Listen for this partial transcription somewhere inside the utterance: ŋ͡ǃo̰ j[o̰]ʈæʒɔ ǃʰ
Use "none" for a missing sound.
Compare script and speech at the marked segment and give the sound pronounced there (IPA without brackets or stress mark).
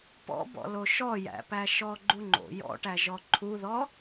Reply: ɔ̰